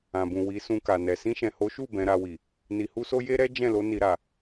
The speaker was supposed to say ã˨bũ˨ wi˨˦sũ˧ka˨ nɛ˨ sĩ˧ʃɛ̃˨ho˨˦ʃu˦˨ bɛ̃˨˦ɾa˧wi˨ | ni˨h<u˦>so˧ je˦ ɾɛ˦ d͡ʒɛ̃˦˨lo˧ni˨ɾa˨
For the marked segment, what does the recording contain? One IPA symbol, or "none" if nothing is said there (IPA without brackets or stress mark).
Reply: u˧